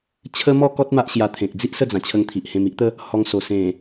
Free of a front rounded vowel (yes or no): yes